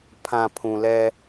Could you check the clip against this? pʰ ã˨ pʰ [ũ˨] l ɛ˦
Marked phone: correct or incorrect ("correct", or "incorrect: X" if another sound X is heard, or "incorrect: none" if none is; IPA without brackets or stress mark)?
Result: correct